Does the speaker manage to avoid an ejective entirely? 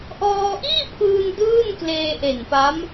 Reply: yes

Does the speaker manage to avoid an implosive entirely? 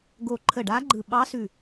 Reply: no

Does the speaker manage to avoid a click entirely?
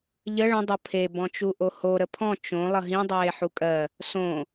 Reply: yes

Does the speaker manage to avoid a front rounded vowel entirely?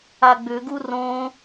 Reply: no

